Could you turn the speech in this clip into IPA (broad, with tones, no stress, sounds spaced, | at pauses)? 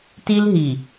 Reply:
t i˦ l ɦ i˨